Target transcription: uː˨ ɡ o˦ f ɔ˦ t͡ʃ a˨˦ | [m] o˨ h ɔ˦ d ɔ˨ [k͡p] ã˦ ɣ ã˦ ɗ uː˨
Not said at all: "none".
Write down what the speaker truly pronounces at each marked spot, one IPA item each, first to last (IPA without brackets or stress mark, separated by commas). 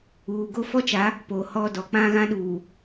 p, k͡p